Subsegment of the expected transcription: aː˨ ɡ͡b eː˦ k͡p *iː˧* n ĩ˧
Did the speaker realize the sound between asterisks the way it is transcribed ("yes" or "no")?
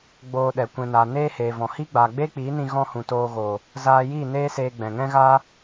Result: no